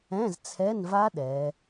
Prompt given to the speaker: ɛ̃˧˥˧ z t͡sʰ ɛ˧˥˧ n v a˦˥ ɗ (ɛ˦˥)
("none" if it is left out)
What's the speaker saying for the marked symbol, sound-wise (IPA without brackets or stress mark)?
ɛ˩˧